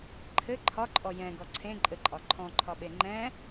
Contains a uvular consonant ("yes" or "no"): no